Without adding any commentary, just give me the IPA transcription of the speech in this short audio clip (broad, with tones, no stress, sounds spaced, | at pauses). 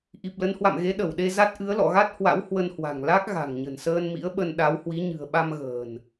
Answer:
ʔ i˨˩ p̚ l ə˨˦ n h w a̰˧˨ m ɣ e˨˦ ɗ ə˧˩ w ɗ e˧ z a˦˥ t̚ ʔ ɨ˨˦ ə̯ l ɔ̰˧˨ ɣ a˦˥ t̚ h w a̰˧˥ w h w ə˧ n h w a̤˨˩ ŋ l a˦˥ k̚ ɣ a̤˨˩ ŋ ɲ ə̤˨˩ n s əː˧ n m ḭ˧˥ ə̯ ɓ ə˧ n ɗ a˨˦ w h w i˨˦ ɲ ɨ̤˨˩ ə̯ ɓ a˧ m ɣ ə̤ː˨˩ n